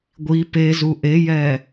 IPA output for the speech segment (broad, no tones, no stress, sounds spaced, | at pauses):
ɡʷ i p e z u ʔ e j ɛ